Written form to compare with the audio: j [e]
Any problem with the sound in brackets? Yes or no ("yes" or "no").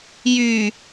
yes